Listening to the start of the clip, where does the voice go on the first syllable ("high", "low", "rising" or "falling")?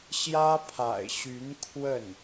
high